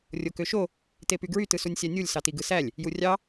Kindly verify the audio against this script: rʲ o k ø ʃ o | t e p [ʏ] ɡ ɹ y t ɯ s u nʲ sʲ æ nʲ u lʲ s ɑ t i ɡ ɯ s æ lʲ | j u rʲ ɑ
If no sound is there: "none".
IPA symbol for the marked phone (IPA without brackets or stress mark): y